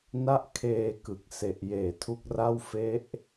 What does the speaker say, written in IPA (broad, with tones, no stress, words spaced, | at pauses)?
na˥˩ʔ kʰeː˧kɯ˨˩k̚ se˨˩ʔjeː˨˩tʰu˦˥k̚ra˥˩w fe˦˥ʔ